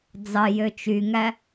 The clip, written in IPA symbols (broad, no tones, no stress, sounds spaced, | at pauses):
d͡z ɑ j ø t͡ʃ y ŋ æ